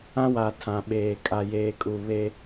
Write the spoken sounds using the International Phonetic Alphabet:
ã˦ w a˨ tʰ ã˨ ɓ eː˨ kʼ a˨ j eː˨ kʼ u˨ β e˦

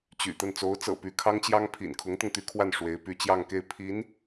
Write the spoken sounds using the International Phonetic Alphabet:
t͡ɕ y̰˨˩ t̪ ə˥˩ n t͡s o˧˥ ʊ̯ t͡s ɤ̰˨˩ p y˧˥ kʰ ɑ˥ ŋ t͡ɕ j ɑ˥ ŋ pʰ ḭ˨˩ n kʰ ʊ˧˥ ŋ t̪ ʊ˧ ŋ t̪ y˧˥ kʰ w a˥˩ n ʂ w e˧˥ ɪ̯ p y˧˥ t͡ɕ j ɑ˥˧ ŋ k e˥˩ ɪ̯ pʰ i˧˥ n

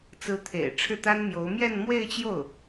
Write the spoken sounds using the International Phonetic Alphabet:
t͡s ɹ̩˧˥ t̪ʰ ḛ˨˩ ɪ̯ ʈ͡ʂʰ ɻ̩˥˩ t̪ a˥ n m j o˧˥ ʊ̯ m j ɛ˥˧ n m w e˥˧ ɪ̯ t͡ɕ j o˥˩ ʊ̯

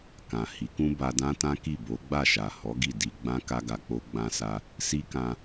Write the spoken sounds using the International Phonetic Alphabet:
k ã˨ h i˨˦ k ũ˦ b a˧ d ã˦ t ã˦ k i˦˨ b o˨˦ ɡ͡b a˦˨ ʃ a˨ h ɔ˨˦ ɡ i˦˨ d i˧ ɡ͡b ã˦ k a˦ ɡ a˧ k͡p o˦ ɡ͡b ã˧ s a˧ | s i˦ k ã˧

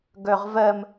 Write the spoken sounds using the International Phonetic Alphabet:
ɡ œ ʁ v ɜ m

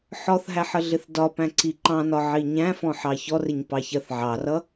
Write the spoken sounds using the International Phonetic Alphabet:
ħ ɔ θ ɦ æ ħ ə ɮ ɪ θ d ɒ p æ̃ ǀ i ǃ ɑ̃ n ɒ ʕ i ɲ æ̃ f ɔ̃ ħ ɑ ç ɔ r ɪ ɲ p ɑ ç ɜ θ ʕ ɑ r ʌ

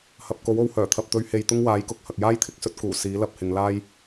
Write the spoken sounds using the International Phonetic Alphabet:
h ɐ˨ p̚ k o˨˥ w o˨˧ w h œː˨˩ t̪ʰ ɐ˨ p̚ t̪ ɵ˨˧ ɥ h e˨ j t̪ ʊ˥ ŋ w aː˨˥ j k ʊ˨ k̚ h ɐ˨ k̚ j aː˥ j t̪ʰ ɪ˨˥ k̚ s ɵ˥ t̚ k uː˨˩ s iː˨˥ l ɐ˧ p̚ h ɪ˨˧ ŋ l aː˥ j

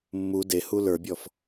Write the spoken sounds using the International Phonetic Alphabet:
mː u d e h u l ə˞ bʲ ɔ f

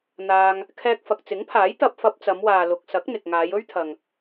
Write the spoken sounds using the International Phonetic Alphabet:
n̪ aː˧ ŋ | kʰ ɛː˧ k̚ f ɐ˨ k̚ t͡s ɪ˨˥ ŋ pʰ aː˨˥ j t̪ ɐ˧ p̚ f ɐ˧ p̚ t͡s ɐ˨˧ m w aː˨ l ʊ˨ k̚ s ɐ˨˥ k̚ n̪ ɪ˨ k̚ ŋ aː˨˧ j ɵ˥ ɥ t̪ʰ ɐ˨ ŋ

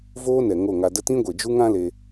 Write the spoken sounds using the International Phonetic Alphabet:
v oː˦ n ɛ˨ ŋ o˦˨ ŋ a˧ d ə˦ t ĩ˦ ɡʷ e˨ d͡ʒ u˦ ŋ ã˦ l e˧

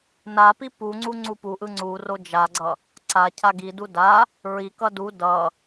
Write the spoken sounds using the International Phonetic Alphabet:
n a p i p u ŋ͡ǀ u ŋ͡ǀ u p u ʔ ɯ ŋ͡ǀ u r o d͡ʒ a ɡ͡ǀ ʌ | ǀ a cʰ a ɡ i d u d a | ɹ i k ʌ d u d ʌ

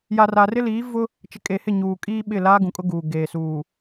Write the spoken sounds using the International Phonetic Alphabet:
j a˨ r a˨ r ɪ˦ l iː˨˦ v ʊ˦ | t͡ʃ ɪ˨ kʼ e˨ h ɪ˦˨ ɲ uː˨ kʼ iː˦ ɓ ɪ˦˨ l aː˦ ɡ ũ˨ kʼ ʊ˦ ɡ uː˨ ɡ eː˨ s uː˨

